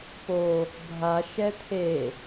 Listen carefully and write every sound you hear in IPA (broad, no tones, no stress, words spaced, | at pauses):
po | bʱa ʃɛt̪ʰe